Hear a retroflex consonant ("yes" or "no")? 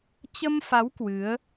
no